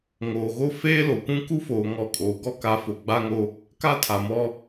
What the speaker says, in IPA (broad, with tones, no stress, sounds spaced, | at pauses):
ŋ oː˨ ɣ o˦ f eː˦ l o˨ kʷ ũ˦ k u˦ f oː˨ ŋ ɔ˦˨ kʼ oː˨ ɡ ɔ˦ k a˨˦ f o˨ ɡ͡b a˦ ŋ o˦ | k a˦ tʰ a˨ m ɔ˦